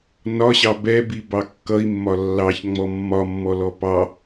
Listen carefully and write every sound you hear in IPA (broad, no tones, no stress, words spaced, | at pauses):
nɒɕɑ bɛbi bɑkːʌi̯mːɒ lːɑçŋ͡mɔ mːɒ mːɔlɔpɑ